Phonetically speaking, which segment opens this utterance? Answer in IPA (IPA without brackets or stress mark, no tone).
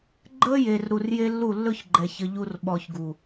ɡ͡ǃ